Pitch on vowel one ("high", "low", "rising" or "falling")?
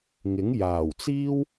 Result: rising